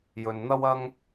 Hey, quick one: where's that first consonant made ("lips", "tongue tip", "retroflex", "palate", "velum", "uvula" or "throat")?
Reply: palate